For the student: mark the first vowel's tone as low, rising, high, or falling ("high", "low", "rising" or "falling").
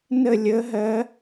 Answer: falling